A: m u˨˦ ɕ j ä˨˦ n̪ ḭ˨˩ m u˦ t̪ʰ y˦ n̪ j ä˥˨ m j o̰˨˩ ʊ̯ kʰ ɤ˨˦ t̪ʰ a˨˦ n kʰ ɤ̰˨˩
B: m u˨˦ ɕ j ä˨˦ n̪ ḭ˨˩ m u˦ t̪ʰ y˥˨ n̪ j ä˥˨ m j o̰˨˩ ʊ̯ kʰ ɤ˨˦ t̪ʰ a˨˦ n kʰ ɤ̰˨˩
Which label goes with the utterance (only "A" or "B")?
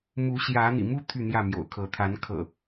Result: B